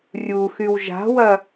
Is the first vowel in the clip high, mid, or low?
high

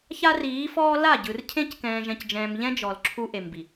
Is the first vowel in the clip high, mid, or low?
low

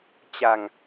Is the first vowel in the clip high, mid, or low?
low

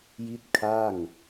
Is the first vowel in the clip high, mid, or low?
high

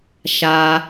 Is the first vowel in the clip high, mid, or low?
low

